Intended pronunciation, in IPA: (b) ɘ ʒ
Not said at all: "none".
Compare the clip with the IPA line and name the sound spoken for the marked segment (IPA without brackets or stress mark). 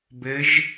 b